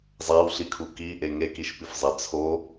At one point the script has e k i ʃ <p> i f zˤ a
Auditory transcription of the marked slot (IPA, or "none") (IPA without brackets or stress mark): p